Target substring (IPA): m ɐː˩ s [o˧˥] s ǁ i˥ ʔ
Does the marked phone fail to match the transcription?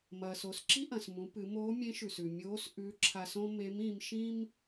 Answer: yes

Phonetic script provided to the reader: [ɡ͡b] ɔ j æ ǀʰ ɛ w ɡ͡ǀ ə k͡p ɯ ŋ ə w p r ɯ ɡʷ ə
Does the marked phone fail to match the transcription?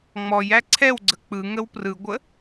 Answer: yes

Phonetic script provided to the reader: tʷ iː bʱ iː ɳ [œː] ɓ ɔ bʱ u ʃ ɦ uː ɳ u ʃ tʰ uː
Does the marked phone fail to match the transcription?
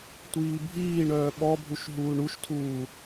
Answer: no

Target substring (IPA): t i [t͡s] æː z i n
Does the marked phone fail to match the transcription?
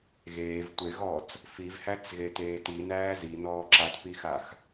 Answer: yes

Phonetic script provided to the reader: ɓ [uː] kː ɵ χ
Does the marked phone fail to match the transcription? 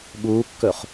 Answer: no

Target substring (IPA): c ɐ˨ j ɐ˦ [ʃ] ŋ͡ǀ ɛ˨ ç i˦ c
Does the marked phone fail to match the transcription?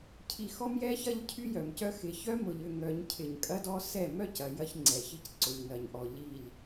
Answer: yes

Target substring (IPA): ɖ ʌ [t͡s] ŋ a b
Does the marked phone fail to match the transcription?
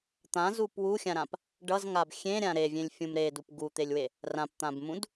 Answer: yes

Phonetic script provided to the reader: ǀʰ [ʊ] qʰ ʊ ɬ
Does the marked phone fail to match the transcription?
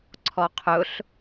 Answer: yes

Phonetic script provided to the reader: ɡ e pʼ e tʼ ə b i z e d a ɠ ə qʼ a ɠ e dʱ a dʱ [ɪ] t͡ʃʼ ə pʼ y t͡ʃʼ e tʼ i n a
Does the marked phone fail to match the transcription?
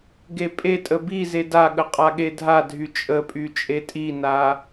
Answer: yes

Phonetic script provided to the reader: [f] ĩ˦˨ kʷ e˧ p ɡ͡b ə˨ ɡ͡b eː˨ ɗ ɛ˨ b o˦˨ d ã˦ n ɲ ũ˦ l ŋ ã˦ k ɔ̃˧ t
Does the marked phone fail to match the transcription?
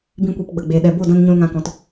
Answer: yes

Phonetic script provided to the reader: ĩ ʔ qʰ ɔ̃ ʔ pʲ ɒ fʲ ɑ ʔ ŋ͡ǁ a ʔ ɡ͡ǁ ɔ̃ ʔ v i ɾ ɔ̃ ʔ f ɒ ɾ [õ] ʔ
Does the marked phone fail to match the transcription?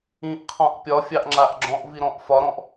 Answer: yes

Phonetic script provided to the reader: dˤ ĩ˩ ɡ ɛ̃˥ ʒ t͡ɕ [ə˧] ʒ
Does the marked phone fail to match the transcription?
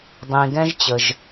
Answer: yes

